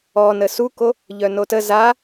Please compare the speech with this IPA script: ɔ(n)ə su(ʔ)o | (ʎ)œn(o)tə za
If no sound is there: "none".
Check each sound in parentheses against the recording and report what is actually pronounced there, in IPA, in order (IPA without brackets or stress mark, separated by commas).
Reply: n, k, ʎ, o